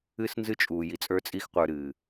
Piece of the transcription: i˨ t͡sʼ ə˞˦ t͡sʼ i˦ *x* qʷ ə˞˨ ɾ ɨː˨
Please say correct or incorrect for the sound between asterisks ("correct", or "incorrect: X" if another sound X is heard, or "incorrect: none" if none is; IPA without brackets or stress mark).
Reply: correct